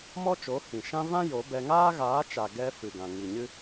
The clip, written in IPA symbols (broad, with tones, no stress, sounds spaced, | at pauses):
m ɔ˦ t͡ʃ o˨˦ h ĩ˨ ʃ ã˦ v ã˦ j o˨˦ b ɛ˧ ŋ aː˦ ɣ aː˨˦ t͡ʃ a˨ ɡ ɛ˧ f ɨ˨ ɡ ã˨ ŋ i˨ ɲ ɨ˦